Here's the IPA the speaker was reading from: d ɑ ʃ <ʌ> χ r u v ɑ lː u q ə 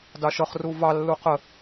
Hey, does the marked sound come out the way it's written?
yes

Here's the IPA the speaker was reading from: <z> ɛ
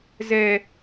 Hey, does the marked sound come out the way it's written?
yes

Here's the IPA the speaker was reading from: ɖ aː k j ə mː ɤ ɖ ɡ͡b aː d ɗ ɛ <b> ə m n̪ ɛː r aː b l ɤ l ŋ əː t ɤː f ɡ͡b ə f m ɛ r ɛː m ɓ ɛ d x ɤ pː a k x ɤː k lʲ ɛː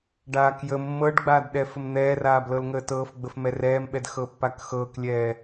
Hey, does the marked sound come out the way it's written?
no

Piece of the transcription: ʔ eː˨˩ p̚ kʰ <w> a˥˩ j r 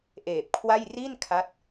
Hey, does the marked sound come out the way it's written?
yes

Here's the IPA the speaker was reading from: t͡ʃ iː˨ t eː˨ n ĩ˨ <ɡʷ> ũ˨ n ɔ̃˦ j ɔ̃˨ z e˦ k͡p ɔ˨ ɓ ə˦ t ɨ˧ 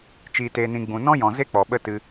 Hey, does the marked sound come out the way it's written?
no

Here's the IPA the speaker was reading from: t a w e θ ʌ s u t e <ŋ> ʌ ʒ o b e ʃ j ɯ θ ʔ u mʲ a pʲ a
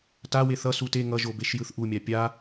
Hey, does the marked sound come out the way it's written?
yes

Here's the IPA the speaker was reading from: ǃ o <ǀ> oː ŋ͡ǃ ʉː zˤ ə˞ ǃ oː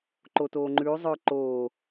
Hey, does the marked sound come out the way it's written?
no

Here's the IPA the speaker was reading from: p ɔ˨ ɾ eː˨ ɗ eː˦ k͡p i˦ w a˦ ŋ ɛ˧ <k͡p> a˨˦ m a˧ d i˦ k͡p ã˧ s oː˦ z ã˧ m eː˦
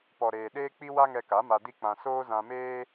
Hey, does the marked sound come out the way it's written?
no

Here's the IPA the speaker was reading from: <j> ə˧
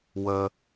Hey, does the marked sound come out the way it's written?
no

